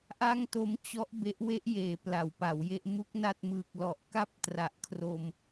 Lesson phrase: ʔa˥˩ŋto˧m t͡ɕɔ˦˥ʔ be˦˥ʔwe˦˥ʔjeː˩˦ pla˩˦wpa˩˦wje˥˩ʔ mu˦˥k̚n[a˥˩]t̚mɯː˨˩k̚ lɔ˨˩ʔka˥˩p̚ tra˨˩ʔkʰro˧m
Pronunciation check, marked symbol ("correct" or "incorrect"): correct